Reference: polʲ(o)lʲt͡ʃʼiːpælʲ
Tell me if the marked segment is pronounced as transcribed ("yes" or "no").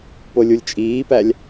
no